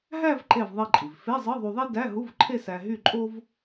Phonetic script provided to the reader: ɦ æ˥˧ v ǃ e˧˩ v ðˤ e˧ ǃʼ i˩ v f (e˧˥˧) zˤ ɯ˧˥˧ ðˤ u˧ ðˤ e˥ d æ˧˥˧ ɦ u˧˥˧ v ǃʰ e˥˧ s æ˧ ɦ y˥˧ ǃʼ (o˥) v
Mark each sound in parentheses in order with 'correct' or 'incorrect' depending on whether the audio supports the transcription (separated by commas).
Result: correct, correct